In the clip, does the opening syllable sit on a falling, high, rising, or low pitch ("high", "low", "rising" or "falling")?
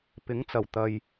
rising